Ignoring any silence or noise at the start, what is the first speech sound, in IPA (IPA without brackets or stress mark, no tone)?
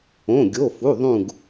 õ